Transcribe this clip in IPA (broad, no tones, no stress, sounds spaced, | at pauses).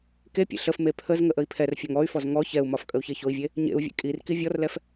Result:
k e pʲ ḛ ɬ ə f m e pʰ ə z ŋ ə ʔ ə i̯ pʰ ɛ r fʲ ɒ ŋ ɔ y̯ f ɔ z ŋ ɔ ç ɛ u̯ m ɒ f kʼ ə u̯ ç e ç o i̯ vʲ e | ɲ ḛ u̯ vʲ ḛ kʼ i r k i vʲ ɔ r l ɛ f